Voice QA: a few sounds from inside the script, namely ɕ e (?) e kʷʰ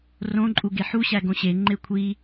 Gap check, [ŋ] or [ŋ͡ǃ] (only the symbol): ŋ͡ǃ